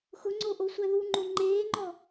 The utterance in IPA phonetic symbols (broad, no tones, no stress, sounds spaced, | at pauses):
x ʊ ŋ͡ǀ o ʔ o sʷ ɛ ð u ŋ͡ǃ o ŋ͡ǃ eː ŋ͡ǃ ɔ